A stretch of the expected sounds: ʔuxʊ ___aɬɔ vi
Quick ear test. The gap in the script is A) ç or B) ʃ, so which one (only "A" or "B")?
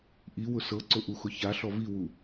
A